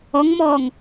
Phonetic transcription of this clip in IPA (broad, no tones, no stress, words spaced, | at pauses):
ɔŋmɔːŋ